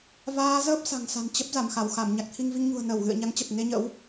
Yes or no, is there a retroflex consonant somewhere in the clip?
no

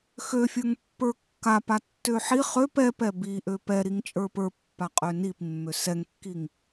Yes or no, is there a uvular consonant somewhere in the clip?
yes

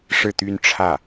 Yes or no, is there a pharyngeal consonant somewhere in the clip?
no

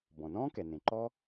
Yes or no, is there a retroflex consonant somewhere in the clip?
no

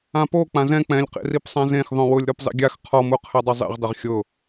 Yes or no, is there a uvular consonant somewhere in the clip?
yes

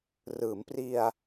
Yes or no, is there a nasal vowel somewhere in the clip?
no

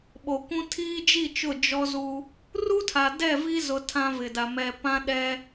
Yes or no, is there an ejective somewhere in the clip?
no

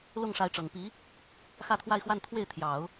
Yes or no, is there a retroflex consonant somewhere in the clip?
yes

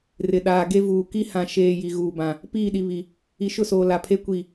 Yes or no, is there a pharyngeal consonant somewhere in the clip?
no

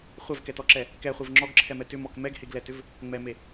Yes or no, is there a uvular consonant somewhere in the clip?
yes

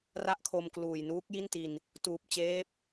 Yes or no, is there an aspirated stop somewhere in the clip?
yes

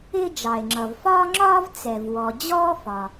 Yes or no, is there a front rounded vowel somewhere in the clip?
no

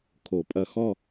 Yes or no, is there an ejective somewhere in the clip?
yes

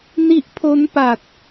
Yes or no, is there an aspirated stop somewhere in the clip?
yes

